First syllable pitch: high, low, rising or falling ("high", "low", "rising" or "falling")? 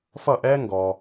falling